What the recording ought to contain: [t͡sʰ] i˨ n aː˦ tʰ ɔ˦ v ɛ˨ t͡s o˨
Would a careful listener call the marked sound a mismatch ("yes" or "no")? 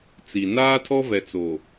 yes